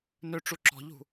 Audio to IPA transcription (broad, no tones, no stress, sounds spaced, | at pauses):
n ø ʈ͡ʂ u ǁ ɔ̤ ʎ ṳ